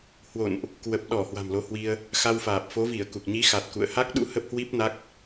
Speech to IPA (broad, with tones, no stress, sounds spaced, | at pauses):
h w o̰˧˨ n ʔ | k w ə˨˩ p̚ ɗ ɔ˧˩ h w a̤˨˩ m l o˨˦ h w i˧ ə̯ | x a˧ w f aː˨˩ p̚ f o˨˦ v i˧˩ ə̯ k u˨˩ k̚ ɲ i˨˦ x a˨˩ t̚ k ṵ˧˨ ə̯ h a˦˥ k̚ ɗ ṵ˧˥ h ə˦˥ p̚ h w i˦˥ p̚ n a˦˥ k̚